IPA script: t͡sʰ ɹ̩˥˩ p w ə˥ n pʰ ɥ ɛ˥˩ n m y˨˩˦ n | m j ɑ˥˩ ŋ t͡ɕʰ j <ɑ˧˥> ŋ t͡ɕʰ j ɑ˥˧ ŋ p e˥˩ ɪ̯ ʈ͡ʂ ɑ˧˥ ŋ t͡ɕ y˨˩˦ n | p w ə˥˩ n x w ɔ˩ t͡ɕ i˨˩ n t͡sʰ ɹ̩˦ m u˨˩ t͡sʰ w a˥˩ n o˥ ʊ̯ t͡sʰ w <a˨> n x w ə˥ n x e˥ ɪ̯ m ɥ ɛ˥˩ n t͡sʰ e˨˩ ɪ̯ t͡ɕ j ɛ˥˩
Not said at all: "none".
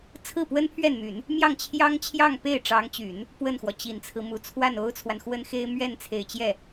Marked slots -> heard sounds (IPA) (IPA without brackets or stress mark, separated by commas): ɑ˥, a˨